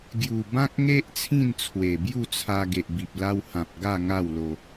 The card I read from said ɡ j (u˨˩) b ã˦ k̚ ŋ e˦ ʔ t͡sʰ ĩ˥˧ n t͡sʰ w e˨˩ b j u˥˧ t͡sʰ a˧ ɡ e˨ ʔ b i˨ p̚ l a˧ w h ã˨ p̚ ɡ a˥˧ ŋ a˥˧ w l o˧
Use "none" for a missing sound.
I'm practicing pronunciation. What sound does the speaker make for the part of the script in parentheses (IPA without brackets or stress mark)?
u˨˩